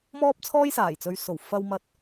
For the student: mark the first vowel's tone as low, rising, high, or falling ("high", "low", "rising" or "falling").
high